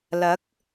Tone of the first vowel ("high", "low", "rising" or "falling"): rising